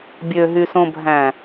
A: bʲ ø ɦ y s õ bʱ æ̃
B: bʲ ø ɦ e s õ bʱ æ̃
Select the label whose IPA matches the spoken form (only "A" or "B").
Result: A